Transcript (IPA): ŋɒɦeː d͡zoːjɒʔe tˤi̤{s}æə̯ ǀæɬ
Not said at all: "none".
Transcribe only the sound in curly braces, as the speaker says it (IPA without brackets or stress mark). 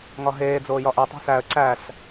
s